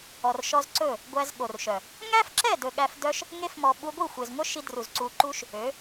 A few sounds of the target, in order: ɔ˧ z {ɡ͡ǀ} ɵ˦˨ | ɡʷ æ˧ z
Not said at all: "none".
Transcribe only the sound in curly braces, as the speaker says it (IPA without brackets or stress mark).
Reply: ǀ